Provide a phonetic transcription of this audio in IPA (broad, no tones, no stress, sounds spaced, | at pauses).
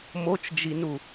m o t͡ʃ d͡ʒ i n u